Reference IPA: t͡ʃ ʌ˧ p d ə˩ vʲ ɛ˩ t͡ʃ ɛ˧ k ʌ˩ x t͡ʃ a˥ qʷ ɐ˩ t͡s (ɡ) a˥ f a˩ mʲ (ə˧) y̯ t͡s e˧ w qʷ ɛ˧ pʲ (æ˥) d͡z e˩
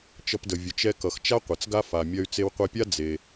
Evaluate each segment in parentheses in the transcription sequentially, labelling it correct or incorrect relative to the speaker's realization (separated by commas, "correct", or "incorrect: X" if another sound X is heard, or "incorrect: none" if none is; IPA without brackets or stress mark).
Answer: correct, incorrect: ɐ˧, incorrect: a˥